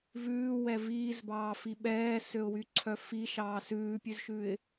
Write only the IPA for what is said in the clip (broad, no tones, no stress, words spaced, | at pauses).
vʉːwɛ viːzbɑː fiɓɛːsøʊ̯wy ǀʰœfi ʃɑːsʉːpʲʉzʃʉɪ̯